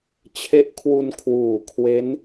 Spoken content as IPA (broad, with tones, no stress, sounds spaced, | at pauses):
t͡ɕʰ e˦˥ ʔ kʰ w u˧ n kʰ w uː˨˩ kʰ w e˦˥ n